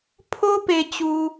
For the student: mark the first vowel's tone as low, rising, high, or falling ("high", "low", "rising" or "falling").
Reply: high